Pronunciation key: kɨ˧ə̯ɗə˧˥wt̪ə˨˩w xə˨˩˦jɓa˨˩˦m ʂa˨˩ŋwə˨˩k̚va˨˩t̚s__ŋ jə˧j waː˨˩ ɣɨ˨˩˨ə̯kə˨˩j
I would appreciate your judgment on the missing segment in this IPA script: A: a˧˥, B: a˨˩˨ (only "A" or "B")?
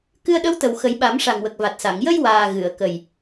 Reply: B